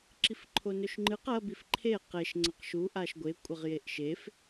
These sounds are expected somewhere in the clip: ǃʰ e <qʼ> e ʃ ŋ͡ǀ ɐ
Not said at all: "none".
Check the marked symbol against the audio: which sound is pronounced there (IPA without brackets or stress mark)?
q